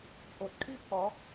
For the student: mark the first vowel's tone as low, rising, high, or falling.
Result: low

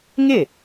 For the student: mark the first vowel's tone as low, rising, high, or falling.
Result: falling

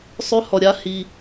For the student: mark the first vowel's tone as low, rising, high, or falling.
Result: high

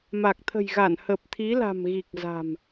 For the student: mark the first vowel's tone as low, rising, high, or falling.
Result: low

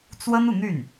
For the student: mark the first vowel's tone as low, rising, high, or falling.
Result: high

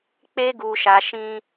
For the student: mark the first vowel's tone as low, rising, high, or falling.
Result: high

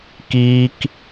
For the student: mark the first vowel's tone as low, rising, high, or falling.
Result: high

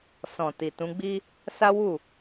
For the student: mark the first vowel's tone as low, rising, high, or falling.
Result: low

